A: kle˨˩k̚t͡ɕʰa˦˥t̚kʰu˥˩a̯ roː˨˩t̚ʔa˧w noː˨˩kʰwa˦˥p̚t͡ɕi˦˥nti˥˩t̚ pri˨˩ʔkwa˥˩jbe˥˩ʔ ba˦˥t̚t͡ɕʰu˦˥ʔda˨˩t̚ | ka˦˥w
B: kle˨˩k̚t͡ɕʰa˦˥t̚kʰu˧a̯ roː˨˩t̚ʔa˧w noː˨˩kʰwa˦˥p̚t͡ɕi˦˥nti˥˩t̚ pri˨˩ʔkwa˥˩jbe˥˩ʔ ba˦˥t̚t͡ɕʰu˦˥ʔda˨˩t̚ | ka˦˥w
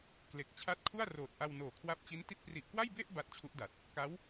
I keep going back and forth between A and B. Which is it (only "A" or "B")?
A